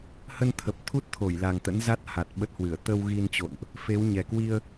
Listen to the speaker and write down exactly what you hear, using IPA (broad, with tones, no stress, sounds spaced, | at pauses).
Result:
h ə˧ n t̪ʰ ə˨˩ p̚ t̪ʰ u˦˥ t̚ t̪ʰ o˧˩ j l a˨˩ ŋ t̪ ə̰˧˥ n z a˦˥ t̚ h a˨˩ t̚ ɓ ə˦˥ t̚ h w ɨ˧˩ ə̯ t̪ ə˧ w ɣ i˧ n t͡ɕ o̰˧˨ n ʔ | f e˨˦ w ɲ ɛ˨˩ k w i˧ ə̯